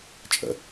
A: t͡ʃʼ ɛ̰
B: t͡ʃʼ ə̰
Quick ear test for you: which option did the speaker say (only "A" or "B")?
B